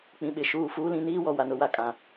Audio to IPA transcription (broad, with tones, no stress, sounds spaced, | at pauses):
k͡p ĩ˨ ɓ ɪ˨ ʃ uː˨ f uː˦ l ĩ˦ n iː˦ w ɔ˨ w a˨ n ʊ˨ w a˦ kʼ ã˨